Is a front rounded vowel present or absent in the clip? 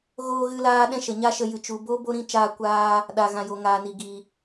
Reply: absent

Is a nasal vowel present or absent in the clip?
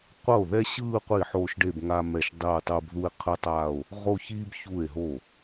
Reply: absent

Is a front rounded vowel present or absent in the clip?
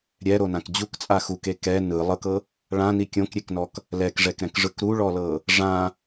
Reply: absent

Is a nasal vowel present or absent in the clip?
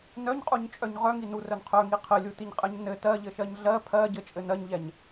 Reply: absent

